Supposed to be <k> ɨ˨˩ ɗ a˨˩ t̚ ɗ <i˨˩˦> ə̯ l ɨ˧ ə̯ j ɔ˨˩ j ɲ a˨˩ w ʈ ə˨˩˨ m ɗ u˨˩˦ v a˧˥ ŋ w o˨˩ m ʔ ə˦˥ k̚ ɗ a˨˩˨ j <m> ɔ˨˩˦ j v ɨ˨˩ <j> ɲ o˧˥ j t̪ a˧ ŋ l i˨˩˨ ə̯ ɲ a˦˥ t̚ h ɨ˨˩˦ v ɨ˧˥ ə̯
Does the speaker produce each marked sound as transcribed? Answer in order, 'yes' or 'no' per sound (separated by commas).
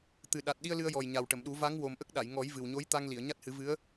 no, no, no, no